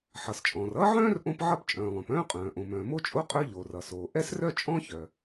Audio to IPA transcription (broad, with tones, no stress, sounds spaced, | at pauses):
ħ ʌ˩ s t͡ʃʼ ɔ̃ː˩ r ʌː˥ ʕ œ̃ː˥ r ʔ õ˥ p ʕ ʌ˥ p t͡ʃʼ œ̃ː˩ lˠ œ̃˩ p œ̃ː˥ qʼ œ̃ː˩ ʔ õ˩ m œ̃ː˩ m o˥ t͡ʃʼ o˥ qʼ œ˥ ʎ oː˩ r ʌ˩ s oː˩ ʔ ɛ˥ s r œ˥ t͡ʃʼ ɔ̃˥ ç œ˩